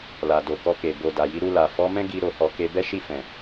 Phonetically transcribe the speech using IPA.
l a˨ d o˨ k ɔ˧ k e˨ b o˨ d a˨ j i˨˦ ɾ u˧ l a˨ f ɔ˨˦ m ɛ̃˦ ɡ i˧ ɾ o˧ h ɔ˧ k e˧ b ɛ˦ ʃ i˦˨ f ɛ̃˨

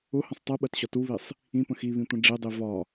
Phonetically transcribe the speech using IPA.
ʊ h ə̃ sˤ tˤ i ɓ ɜ t ɕ ɒ t u β i sˤ | ĩ p ə̃ x i β ĩ tʷ ə̃ ɖ͡ʐ i dˤ i v ɒ

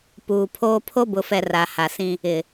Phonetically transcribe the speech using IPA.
p uː˨ pʰ oː˦ pʰ o˦ b ʊ˨ f ɛ˨ r a˨ h a˨ s ĩ˦ | ɪ˨

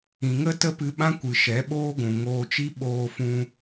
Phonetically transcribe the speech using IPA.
ĩ˨ ŋ ə˦ t ə˦ p ɨ˧ ɓ ã˦ kʷ ɨ˨ ʃ ɛ˨˦ ɓ oː˦ ɡʷ ũ˨ ŋ oː˧ t͡ʃ i˦ ɓ oː˧ f ũ˧

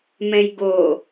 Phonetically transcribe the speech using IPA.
m ɛ̃ j ɡ o

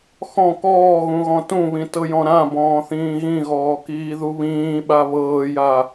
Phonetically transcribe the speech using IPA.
x ɔ̃ k ɔː ɣ ũ ɣ ɔ̃ t ũ β ĩ t ɤ j ɔ̃ ɾ ã b ɔ̃ː θ ĩː ɣ ĩ ɣ ɔː k iː ð u β ĩː ɓ a β ɤː j a

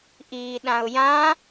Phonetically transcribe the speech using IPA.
ʔ iː ɗ ã ʊ̯ j ã

